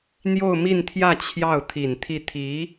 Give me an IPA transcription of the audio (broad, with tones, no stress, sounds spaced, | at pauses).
n̪ j o˥˧ ʊ̯ m i˥˧ n t̪ʰ j ä˥˧ t͡ɕʰ j ɑ˥˩ ʊ̯ t̪ʰ i˨˩ n t̪ʰ i˥˩ t̪ʰ i˧˥